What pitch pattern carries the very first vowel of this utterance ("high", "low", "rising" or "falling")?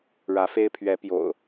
rising